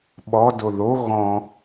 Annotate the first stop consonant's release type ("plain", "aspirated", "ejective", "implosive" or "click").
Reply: implosive